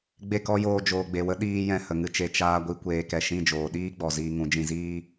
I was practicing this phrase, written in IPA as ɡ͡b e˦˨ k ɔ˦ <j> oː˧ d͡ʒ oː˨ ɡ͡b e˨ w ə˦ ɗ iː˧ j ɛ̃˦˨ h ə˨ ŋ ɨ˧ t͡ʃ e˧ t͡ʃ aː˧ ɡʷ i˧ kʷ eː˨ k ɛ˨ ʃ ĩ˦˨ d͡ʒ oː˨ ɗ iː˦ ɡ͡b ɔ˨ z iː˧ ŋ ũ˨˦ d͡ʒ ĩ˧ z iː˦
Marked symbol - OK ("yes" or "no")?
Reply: yes